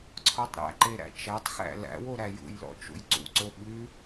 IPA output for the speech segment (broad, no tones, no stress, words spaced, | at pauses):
ǀʰɔtˤɾæ̰ǃe ɾæ̰t͡ʃætˤxæ̰ læ̰wo ɾæjṵjlɔ̰ t͡ʃṵjǀṵǀo ɓʉ